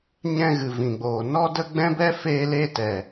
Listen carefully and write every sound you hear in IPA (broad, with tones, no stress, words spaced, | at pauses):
ɲɛ̃˧ɣɨ˨ vĩ˨ɡ͡boː˨ nɔ˦də˦ ɡ͡bɛ̃˦bɛ˦ feː˧le˧tɛ˨